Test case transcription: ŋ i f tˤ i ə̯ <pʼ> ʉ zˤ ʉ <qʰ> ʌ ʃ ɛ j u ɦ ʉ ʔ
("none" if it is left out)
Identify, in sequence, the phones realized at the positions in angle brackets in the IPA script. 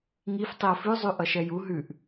f, ʔ

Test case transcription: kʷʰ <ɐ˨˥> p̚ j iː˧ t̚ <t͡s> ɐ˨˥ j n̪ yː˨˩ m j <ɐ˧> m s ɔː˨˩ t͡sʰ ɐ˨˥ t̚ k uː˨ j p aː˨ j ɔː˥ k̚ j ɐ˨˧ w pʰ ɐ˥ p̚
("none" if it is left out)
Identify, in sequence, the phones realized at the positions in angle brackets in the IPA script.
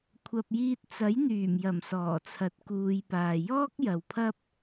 ɐ˧, t͡s, ɐ˨˩

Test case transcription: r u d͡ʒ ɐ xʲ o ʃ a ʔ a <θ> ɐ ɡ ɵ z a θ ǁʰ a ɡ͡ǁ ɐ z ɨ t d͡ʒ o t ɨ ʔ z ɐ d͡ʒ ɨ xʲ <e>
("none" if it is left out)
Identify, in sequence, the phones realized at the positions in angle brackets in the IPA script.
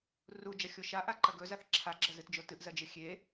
ǃ, e

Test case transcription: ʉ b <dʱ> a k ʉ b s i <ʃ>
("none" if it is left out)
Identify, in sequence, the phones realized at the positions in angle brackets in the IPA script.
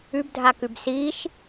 dʱ, ʃ

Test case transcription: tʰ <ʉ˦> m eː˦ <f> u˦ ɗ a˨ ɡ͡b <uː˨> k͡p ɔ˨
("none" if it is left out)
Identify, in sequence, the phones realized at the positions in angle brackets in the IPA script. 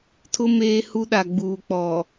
ʊ˦, h, uː˨

